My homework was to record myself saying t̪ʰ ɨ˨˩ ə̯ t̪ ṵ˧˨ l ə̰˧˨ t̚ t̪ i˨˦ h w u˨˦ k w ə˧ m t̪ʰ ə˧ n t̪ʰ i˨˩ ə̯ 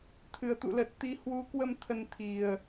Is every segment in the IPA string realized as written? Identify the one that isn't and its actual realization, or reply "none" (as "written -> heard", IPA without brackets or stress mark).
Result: ə̰˧˨ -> ə˨˩